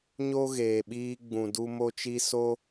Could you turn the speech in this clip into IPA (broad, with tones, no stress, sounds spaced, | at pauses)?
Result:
ɲ o˦ ɣ eː˨ ɓ iː˧ ɡ͡b ũ˨ d u˧ m o˧ t͡ʃ i˧ s o˦